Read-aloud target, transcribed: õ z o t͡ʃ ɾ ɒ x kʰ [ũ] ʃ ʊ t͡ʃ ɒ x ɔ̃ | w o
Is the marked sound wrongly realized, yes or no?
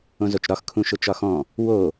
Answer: no